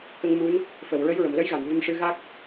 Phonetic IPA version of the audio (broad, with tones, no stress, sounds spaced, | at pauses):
k ə˧ ŋ m u˧˥ n | f ə˨˩˨ w ɹ ə˧˥ j ɹ ə˨˩˨ m l ə˧˥ j ɣ a˨˩˨ n v ə˧ m ʂ ɨ˧ ɣ a˦˥ k̚